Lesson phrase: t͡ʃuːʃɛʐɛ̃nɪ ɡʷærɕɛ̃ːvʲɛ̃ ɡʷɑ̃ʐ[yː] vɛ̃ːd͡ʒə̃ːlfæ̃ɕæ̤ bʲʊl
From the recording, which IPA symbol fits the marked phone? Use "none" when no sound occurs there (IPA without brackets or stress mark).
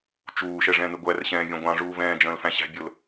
uː